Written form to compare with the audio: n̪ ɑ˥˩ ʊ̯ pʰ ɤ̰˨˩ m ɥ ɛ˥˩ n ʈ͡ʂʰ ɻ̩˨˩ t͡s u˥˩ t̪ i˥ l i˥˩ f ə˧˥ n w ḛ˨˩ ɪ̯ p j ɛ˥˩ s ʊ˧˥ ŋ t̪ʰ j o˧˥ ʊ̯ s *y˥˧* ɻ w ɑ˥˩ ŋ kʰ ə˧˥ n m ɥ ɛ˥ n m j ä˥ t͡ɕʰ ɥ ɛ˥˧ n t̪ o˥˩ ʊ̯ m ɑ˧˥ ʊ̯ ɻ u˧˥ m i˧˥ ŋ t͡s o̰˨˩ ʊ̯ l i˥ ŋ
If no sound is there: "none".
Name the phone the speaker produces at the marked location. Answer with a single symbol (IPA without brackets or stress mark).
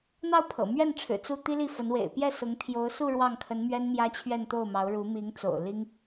u˥˧